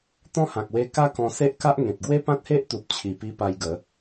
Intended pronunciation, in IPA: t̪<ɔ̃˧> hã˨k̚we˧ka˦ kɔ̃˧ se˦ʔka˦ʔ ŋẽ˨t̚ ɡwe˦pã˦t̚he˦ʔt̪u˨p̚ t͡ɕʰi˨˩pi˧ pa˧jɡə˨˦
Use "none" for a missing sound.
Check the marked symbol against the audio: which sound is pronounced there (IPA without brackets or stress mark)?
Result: ɔ̃˦